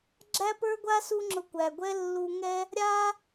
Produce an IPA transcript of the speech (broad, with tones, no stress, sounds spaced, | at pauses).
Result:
ɡ͡ǁ æ˥ p ə˞˥ ɡʷ a˥ s u˥ ŋ͡ǁ ʊ˧ kʷ æ˩ ɡʷ ɛ˥ lː u˧ ŋ ɛ˥ | ɾʲ a˥